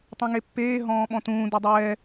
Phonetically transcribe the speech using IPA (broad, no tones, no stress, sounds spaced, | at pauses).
tˤ ẽ ŋ e pː eː ɦ ɔ̃ː ɓ ɔ̃ t ũː d u dˤ ɛː